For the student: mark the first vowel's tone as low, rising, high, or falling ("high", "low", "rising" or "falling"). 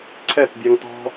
falling